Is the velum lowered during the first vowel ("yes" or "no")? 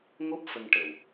no